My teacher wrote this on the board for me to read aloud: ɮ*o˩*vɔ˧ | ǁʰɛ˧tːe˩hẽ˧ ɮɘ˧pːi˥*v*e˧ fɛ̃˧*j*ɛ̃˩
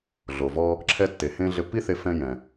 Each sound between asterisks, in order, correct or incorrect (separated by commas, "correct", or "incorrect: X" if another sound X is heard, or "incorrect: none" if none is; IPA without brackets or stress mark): correct, incorrect: θ, correct